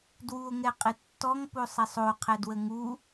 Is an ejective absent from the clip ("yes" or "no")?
no